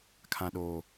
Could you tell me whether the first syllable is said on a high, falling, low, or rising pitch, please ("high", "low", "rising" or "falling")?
low